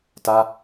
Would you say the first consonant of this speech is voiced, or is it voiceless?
voiceless